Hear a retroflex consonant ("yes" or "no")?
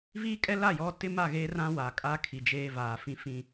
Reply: no